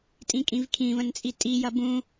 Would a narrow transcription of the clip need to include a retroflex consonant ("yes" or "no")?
no